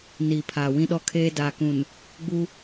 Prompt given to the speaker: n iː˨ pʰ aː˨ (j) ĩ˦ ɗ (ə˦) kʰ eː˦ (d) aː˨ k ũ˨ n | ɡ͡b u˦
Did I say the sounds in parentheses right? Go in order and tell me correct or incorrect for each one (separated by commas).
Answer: incorrect, incorrect, correct